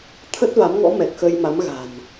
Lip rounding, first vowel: unrounded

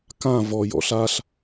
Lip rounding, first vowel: unrounded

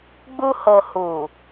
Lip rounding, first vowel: rounded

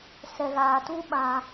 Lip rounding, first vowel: unrounded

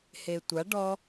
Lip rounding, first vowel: unrounded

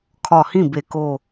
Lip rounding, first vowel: rounded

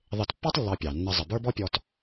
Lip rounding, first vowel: unrounded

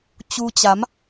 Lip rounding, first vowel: rounded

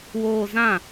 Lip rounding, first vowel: rounded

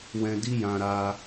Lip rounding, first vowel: unrounded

